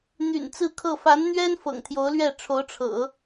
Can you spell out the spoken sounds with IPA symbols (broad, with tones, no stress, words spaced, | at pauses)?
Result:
n̪y̰˨˩nt͡sɹ̩˥˧kʰɤ˥˩ fa˧˥nn̪ɥɛ˥n fɤ̰˨˩ŋt̪ʰjo˧˥ʊ̯lɥɛ˥˩ ʈ͡ʂʰo˧˥ʊ̯ʈ͡ʂʰɤ̰˨˩˦